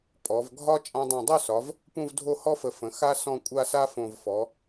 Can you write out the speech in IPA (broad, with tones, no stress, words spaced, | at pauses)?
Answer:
pʼɔ˩˧vɡʱɒ˥ t͡ʃʼã˧dˤã˧˩dˤu˥˧sɒ˩˧v | pũ˥˧vdʱo˥˧hɔ˥fə˧˩ fə̃˩˧ xa˧sɔ̃˧˩ kʷʼa˥˧sa˥fõ˧˩v fɔ˩˧